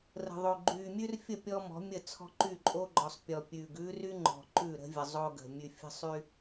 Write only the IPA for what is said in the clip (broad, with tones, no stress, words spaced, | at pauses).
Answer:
rə̤˨ðˤo˨ ɡ͡ǃyː˨mʲʉ˦rfʲə˦˨ pʲɔ˦mɔ̤˨˦mʲə˦˨ t͡sʰɔ̤˦ǃy˦˨ǃʼo˦ɡ͡ǃɔ˨sˤ pʲɔ˨pʲʉː˨ɡ ʉː˦ry˦ ŋ͡ǃɔ̤˨ ǃʉ˦˨ɾə̤˦vʲə˨ zˤo˦ɡə̤˨ mʲʉ˨fʲə̤˦sˤy˦